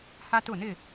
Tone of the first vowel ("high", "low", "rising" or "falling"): high